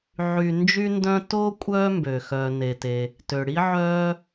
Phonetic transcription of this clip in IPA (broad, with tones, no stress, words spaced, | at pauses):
ʕy˨ nd͡ʒy˥ndœ̃˥ toː˥kʷʼœː˦ mbøː˩ xœː˩ ne˩te˩ | tø˩ɽi˥ʕœː˦